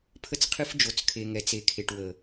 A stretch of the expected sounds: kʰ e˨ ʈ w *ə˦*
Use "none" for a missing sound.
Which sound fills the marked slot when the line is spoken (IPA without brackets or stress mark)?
ə˨